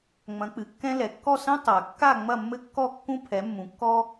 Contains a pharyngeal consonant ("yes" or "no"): no